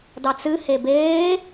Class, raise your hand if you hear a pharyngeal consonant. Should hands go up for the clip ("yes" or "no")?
no